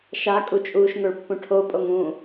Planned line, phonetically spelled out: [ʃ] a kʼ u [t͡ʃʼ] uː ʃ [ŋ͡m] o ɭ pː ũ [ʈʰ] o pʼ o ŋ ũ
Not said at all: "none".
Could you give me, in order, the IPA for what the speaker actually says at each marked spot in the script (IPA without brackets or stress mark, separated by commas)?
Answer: ʃ, t͡ʃʼ, ŋ, ʈʰ